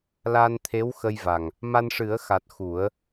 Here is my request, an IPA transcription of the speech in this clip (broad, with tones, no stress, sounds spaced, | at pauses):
l aː˧ n t̪ʰ e˧˥ w x ə˧ j v a˨˩ ŋ | m a˧ n ʂ ɨ˨˩˦ ə̯ x a˨˩ t̚ x u˨˩˦ ə̯